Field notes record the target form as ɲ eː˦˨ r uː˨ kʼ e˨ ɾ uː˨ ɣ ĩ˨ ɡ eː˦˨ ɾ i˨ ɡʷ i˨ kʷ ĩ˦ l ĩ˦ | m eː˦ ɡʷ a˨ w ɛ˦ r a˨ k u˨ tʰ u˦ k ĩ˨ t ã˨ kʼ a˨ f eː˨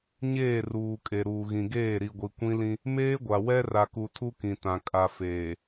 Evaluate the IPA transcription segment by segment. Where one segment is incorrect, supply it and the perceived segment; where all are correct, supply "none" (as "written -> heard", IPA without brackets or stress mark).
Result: none